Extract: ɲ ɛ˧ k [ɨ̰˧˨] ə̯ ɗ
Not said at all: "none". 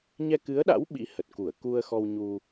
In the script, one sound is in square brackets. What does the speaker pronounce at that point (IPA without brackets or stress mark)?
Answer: ɨ˨˦